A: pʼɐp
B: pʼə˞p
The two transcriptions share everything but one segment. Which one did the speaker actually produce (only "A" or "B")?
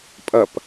A